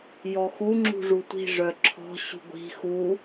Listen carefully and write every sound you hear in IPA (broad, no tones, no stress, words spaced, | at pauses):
jɔxu ŋ͡ǁṳʐutʷi̤ ʐœǁʰɔ̤ ɕṳɡʷi̤ xu